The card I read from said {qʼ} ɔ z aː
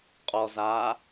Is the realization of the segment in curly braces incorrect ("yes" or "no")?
no